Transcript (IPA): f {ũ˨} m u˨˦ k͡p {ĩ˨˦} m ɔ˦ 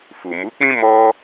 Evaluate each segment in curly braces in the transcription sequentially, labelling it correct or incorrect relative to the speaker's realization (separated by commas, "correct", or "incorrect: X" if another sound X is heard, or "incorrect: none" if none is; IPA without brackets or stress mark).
incorrect: u˨, incorrect: ĩ˦